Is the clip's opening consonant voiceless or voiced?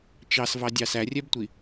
voiceless